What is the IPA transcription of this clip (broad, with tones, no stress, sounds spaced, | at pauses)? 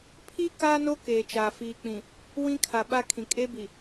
pʰ i˦ k aː˦ n o˦ k eː˨ t͡ʃ aː˨ f iː˨ k͡p ĩ˨ | w ĩ˦ kʰ a˨ ɓ a˦ kʰ ĩ˨ kʼ e˦ b i˨